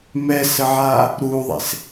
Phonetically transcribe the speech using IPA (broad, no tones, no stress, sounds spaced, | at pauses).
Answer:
m ɛ s ə ʕ a | ɾ u ðˤ ḛ s